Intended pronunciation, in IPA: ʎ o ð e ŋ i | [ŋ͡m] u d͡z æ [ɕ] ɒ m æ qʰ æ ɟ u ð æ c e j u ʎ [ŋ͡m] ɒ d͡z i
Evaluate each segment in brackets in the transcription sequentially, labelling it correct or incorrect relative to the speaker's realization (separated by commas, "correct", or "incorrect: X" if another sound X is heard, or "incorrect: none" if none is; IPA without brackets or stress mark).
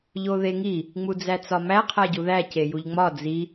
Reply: correct, incorrect: t͡s, correct